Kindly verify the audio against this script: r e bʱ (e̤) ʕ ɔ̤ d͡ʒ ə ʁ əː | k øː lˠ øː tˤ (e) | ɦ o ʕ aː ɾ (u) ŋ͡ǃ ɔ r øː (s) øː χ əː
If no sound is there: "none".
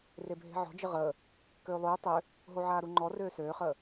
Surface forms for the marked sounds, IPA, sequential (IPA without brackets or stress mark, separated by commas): e̤, ø, u, s